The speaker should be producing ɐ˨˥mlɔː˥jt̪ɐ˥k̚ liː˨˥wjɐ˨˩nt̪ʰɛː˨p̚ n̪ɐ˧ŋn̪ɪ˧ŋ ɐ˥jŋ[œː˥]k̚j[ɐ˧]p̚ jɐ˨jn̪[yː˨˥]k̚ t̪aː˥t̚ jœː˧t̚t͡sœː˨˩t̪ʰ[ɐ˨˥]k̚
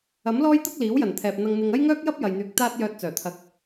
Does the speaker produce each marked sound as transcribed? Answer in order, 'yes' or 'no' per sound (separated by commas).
yes, no, yes, yes